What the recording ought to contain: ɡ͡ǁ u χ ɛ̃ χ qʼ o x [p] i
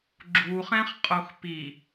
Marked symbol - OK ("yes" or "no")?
yes